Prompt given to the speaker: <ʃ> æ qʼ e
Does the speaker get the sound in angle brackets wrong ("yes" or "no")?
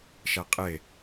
no